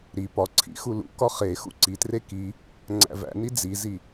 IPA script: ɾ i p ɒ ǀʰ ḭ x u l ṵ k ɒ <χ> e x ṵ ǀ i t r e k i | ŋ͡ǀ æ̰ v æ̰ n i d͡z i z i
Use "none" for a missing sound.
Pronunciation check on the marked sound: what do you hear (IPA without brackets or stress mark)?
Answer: χ